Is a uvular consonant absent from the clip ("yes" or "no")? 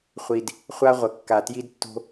no